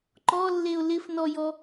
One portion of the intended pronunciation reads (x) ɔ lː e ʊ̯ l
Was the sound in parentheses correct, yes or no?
no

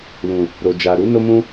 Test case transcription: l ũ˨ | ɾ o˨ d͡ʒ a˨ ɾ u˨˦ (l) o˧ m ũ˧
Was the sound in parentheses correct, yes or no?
no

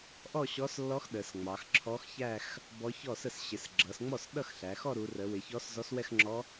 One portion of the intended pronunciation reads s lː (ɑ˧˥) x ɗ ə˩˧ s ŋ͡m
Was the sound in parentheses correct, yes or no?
no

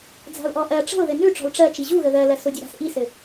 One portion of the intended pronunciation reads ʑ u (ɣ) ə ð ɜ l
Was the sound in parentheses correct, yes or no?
yes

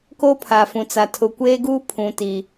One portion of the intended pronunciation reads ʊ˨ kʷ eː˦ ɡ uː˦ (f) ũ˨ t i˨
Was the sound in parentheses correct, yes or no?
no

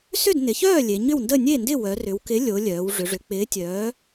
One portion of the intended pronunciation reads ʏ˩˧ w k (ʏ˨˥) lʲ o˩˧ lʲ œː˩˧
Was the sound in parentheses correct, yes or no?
no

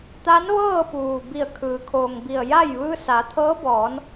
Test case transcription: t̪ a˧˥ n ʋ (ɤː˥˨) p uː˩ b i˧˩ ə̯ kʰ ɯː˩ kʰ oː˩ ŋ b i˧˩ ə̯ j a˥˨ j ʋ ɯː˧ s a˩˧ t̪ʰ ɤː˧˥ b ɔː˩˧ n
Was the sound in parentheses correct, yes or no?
yes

